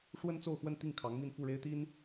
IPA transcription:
ʂwə˥nt͡so˥˧ʊ̯xwə˥˧nt̪i˥˩ŋ kʰɑ˧˥ŋmi˥˧n fu˥˩ɻe˥ɪ̯t̪i˥n

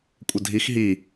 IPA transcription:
kʷʼədʱix ɦi

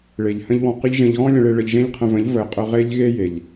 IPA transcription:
ɭe˨ʎ hə̃˦ʎwɔ̃˧qɨ˦ʎ ʒẽ˧ʎɣɔ̃˦lʲə̃˧ɭe˧ ɭə˧ʎʒẽ˦ʎqʰə̃˧və̃˨˦ʎ vəː˨˦qʼə˧ ʁe˦ʎɣe˦je˨ʎ

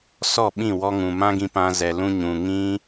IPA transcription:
sɔ˦˨ɓĩ˦˨wɔ˧ ŋũ˨mã˦ɡĩ˧ pã˧zɛ˨lũ˧ ɲũ˨ŋĩ˦

